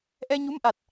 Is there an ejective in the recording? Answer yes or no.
no